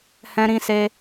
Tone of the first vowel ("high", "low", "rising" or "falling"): high